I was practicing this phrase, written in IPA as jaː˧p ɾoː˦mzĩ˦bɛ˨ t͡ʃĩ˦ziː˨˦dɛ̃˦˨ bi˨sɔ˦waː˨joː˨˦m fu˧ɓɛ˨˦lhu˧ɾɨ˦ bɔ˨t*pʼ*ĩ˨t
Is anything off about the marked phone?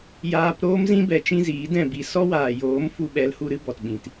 yes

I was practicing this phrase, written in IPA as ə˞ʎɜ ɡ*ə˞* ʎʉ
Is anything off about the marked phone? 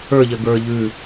no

